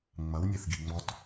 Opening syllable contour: rising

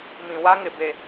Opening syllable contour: low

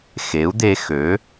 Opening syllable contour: rising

